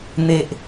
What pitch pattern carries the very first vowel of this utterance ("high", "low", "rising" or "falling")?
high